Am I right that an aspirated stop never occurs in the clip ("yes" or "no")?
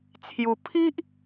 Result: no